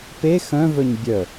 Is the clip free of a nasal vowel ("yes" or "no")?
no